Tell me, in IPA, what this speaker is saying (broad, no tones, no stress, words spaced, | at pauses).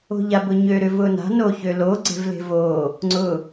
o̤ʎabʊɲø ɾʏvʊna̤ noçølo ɡ͡ǀe̤vle̤vo | ŋ͡ǀʊ